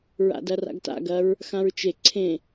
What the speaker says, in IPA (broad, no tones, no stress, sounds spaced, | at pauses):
ɹ a̰ d ɐ r a̰ ɡ t a̰ ɡ ɐ ɹ | x ã ɹ t͡ʃ e ǀʰ ẽ